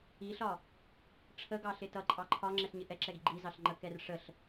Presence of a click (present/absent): present